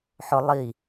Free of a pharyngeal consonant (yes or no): no